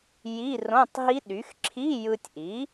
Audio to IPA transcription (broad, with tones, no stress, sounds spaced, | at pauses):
j i˧˥˧ r õ˧˥˧ tˤ ɦ i˦˥ ɗ y˩˥ x ǁʰ i˧˥˧ j ɯ˧ tʲ ʔ i˩˥